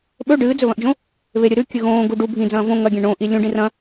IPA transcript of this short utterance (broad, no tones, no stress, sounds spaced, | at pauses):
ɓ ɵ ɖ ɨː d͡z ɵ β ɐ̃ ʔ d͡ʒ õ | β e ɾʲ ɨ ɾ ʉ kʲ ʉ ɣ õː ɡ u ɖ u bʱ ĩ d͡z ɐ̃ː v õ ŋ ɐ ɡʲ ẽ ɳ õː ʔ i lʲ ũ ɖ ĩ r ɐ̃